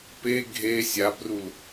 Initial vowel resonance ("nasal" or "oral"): oral